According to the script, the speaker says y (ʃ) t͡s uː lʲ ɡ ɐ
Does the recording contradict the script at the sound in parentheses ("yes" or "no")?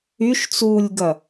no